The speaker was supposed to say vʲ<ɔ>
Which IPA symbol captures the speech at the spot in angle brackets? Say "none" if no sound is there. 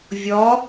ɔ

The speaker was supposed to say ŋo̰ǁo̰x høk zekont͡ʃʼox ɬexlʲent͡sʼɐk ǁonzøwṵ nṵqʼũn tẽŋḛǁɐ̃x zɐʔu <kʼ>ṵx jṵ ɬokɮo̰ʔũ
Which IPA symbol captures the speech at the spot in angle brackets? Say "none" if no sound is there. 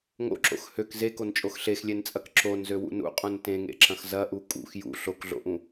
kʼ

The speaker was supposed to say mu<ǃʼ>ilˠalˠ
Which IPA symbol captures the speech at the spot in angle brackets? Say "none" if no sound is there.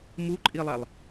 ǃʼ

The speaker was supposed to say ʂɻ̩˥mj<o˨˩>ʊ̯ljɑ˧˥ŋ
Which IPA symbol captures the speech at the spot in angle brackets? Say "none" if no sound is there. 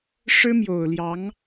o˨˩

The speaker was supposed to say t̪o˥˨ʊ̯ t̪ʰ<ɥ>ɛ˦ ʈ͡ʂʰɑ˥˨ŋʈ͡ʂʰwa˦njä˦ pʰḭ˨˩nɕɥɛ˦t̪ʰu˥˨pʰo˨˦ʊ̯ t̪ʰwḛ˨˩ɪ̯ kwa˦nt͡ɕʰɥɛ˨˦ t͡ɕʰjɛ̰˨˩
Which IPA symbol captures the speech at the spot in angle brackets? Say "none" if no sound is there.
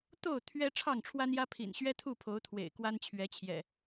ɥ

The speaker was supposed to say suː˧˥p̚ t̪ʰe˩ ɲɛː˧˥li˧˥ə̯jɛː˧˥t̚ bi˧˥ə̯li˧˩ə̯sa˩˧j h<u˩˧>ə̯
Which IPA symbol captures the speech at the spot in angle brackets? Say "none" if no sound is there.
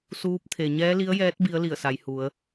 u˩˧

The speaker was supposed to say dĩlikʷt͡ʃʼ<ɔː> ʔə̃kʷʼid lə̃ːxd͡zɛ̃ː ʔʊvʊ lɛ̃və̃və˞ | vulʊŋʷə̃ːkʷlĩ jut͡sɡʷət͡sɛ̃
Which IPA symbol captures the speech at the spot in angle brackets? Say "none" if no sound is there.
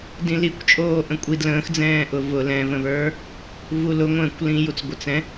oː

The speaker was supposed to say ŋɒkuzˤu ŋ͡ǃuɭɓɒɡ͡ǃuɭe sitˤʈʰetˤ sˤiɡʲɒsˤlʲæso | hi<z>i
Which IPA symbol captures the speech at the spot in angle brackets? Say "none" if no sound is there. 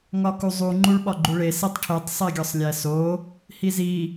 z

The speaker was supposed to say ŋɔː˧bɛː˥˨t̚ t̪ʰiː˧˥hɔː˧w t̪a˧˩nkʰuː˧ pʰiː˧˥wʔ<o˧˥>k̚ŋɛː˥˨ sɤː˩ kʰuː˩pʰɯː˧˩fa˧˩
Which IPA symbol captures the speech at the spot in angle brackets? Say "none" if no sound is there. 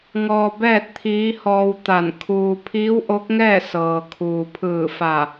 o˧˥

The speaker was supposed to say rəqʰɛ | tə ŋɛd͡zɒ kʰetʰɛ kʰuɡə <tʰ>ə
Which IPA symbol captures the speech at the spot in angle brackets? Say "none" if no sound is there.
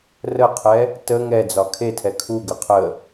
qʰ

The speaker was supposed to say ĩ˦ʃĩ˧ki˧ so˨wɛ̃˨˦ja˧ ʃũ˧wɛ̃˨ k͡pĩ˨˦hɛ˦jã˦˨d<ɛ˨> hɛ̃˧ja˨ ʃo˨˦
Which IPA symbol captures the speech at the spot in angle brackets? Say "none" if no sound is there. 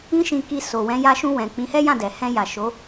ɛ˨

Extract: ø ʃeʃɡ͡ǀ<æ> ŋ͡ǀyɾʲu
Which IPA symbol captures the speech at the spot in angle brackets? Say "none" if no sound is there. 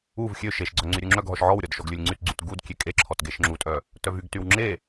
œ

